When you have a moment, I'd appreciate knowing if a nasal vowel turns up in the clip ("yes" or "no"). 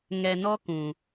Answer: yes